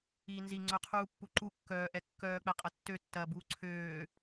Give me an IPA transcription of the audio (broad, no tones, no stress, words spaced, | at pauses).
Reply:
iːnzi ŋ͡ǀœqʰuːpːuǃu kːœːʔɛ kːœːk͡pɛqʼɐ tːøtːɐːbuː ǀʰøː